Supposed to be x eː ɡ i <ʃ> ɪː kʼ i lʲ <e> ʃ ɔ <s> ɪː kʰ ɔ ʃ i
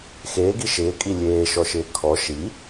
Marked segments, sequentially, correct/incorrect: correct, incorrect: eː, incorrect: ʃ

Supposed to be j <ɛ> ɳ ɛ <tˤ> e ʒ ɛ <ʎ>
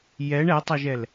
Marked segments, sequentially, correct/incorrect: correct, correct, incorrect: l

